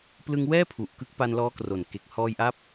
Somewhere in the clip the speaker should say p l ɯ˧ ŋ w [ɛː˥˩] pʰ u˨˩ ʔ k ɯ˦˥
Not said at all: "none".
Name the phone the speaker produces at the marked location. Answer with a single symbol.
ɛː˥˩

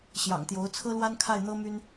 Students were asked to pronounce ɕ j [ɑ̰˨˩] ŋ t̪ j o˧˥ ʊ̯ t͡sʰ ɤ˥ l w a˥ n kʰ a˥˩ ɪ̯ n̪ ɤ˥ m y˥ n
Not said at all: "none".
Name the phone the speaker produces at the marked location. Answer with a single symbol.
ɑ̰˨˩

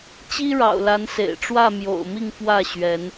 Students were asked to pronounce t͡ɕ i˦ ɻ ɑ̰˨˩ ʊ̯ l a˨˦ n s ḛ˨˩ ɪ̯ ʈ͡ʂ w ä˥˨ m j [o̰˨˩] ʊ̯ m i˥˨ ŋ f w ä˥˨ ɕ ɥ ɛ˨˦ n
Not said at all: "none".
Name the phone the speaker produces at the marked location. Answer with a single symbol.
o̰˨˩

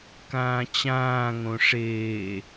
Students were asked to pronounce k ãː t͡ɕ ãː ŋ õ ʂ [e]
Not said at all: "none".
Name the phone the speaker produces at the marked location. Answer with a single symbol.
eː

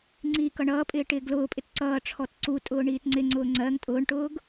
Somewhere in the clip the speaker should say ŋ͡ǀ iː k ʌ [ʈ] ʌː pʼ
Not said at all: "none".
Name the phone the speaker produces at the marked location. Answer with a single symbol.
ɳ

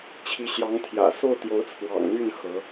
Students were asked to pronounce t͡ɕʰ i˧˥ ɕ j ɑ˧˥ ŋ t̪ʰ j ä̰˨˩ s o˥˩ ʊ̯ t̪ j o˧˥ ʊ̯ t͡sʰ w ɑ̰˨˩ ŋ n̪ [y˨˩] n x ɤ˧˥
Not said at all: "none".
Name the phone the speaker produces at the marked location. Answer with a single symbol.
y˥˩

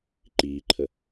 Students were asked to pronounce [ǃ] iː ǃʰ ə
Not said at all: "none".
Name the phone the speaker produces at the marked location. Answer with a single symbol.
ǃ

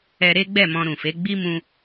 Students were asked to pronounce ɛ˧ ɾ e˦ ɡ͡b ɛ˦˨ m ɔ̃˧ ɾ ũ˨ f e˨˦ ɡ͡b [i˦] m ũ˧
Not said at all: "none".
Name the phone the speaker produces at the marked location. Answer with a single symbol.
i˦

